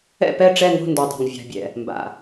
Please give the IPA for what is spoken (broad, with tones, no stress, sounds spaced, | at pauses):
ɛ̰˦˨ p ɛ˦˨ ʈ͡ʂ ɛ˦˨ ŋ o̤˦˨ n d o˩ dˤ a̤˩ ŋ vʲ a̤˩ bʲ ɛ̰˩ | m b a̰˩